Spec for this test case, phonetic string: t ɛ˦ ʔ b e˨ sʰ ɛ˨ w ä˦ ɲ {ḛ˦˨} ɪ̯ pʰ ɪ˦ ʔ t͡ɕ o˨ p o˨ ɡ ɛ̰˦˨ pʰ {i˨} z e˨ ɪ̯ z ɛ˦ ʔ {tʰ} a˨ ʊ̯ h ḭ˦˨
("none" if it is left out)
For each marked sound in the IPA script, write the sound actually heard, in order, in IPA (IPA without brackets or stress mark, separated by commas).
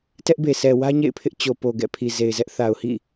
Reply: ḛ˦˨, i˨, θ